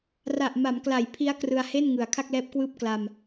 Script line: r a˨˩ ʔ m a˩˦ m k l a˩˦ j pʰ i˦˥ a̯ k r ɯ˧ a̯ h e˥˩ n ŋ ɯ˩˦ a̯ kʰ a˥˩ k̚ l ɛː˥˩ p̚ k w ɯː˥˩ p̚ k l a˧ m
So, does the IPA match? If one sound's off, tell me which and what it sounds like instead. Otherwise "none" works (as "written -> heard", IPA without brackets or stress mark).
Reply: ɛː˥˩ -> ɛː˦˥